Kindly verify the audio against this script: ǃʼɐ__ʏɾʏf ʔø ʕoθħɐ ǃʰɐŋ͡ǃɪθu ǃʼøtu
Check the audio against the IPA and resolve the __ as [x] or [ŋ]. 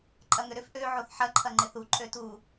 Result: ŋ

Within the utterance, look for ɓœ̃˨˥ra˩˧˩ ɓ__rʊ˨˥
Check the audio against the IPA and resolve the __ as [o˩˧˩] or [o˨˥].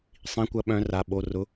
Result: o˩˧˩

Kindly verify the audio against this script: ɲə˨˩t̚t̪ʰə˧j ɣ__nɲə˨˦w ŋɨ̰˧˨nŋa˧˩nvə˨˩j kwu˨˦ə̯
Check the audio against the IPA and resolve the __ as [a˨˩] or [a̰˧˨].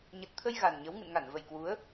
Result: a˨˩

